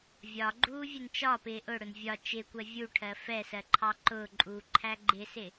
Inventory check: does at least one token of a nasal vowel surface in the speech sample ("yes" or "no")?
no